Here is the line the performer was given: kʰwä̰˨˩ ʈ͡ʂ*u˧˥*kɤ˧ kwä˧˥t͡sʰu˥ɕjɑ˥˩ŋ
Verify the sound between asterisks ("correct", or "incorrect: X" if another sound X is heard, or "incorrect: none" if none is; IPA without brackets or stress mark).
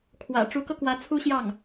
correct